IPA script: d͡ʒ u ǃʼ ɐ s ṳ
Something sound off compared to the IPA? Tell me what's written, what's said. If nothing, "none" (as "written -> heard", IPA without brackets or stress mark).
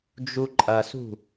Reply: none